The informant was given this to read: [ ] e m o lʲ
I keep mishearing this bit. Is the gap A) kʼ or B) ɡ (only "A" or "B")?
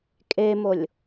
A